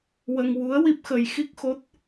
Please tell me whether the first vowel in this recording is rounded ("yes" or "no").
no